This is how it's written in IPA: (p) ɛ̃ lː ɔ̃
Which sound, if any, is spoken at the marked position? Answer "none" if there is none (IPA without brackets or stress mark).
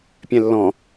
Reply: pʲ